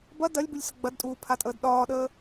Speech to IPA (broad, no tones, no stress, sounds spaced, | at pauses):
b ɐ d ɐ lʲ b u lʲ s ə ɡ͡b ɐ d tʼ uː pʰ a tʼ əː d ɗ ɒː ɗ əː